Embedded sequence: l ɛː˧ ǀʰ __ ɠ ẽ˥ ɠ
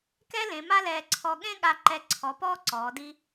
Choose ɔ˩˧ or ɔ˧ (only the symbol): ɔ˧